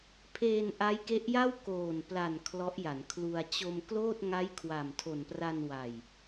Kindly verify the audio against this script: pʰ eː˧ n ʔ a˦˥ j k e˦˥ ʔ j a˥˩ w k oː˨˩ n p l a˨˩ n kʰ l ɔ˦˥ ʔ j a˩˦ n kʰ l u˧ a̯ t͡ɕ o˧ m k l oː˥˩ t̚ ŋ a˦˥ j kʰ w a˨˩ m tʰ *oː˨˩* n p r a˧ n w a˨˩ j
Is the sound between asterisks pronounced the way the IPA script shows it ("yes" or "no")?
no